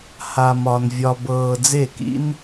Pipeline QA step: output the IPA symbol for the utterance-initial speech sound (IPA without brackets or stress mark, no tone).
h